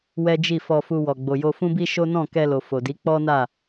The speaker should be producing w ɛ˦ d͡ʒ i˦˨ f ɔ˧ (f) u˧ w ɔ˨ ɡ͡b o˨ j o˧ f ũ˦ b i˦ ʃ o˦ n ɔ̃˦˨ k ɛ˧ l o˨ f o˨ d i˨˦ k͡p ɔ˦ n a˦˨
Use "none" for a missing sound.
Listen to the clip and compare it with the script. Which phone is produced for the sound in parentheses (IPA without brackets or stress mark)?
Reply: f